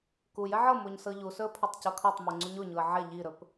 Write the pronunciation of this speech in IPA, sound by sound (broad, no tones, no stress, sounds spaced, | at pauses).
k u j ɛ ʕ ɤ m o ɲ s ɤ ʎ u s ɵ ə̯ pʰ ɵ tˤ c ɤ kʰ ɤ tˤ m u ŋ͡ǀ u ɲ o ɲ u ə̯ ʕ ɛ ʎ i ɾ ɵ p